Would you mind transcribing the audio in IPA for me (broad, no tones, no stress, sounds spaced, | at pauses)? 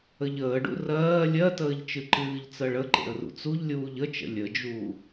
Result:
ə ʎ əː ɖ ṵ r ɜː lʲ ɜ t əː ʎ t͡ʃ ɨ ǃ ɨː ʎ t͡s ɜ ɭ ə ǃ ḛ ə̯ r ṵ t͡s u ʎ lʲ uː ʎ ə t͡ʃ ə̰ lʲ ə d͡ʒ uː